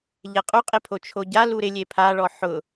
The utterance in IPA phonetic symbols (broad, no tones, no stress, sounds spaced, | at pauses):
ʎ ɛ qʼ u qʼ ɪ pʰ o t͡ʃʰ o ɟ a l u ɾ ɪ lʲ e pʰ a ɭ ɔ ħ ʊ